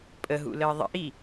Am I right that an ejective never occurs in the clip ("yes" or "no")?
no